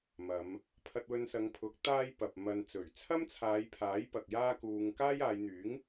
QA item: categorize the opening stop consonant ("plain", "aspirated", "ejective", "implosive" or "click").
aspirated